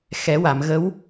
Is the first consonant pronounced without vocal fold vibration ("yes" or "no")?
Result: yes